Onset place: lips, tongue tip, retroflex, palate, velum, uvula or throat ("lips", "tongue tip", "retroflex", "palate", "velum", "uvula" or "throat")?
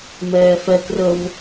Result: lips